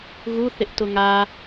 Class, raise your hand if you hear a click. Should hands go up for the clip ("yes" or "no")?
no